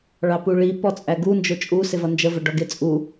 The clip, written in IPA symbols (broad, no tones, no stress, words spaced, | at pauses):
ɭɑpuɭi pɔt͡sʼæɡu nd͡ʒʊt͡ʃʼu sɪvʌnd͡ʒə vəɖɔɡɪ t͡sʼu